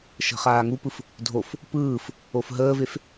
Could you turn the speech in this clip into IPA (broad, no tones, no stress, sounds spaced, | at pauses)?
ʃ ə̤ χ aː ŋ u p ɯ f | dʱ o f | p ɯː f | o f ɦ əː v e f